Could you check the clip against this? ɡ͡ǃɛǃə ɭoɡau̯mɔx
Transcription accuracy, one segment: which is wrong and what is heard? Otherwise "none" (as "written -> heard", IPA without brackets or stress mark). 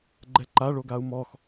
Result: ə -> a